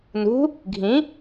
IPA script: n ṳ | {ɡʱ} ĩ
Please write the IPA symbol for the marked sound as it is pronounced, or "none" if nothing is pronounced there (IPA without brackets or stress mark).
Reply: ɡʱ